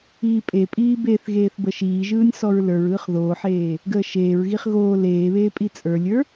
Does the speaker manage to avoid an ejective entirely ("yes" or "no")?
no